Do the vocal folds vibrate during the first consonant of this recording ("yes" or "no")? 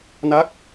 yes